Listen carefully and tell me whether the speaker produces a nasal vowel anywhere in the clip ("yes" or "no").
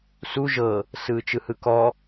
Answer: no